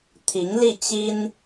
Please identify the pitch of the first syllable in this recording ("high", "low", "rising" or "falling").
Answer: rising